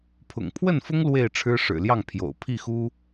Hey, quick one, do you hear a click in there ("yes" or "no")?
no